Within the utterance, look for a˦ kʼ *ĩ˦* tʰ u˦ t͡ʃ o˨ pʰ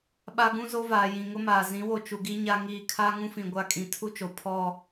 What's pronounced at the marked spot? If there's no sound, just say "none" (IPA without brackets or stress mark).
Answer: ĩ˨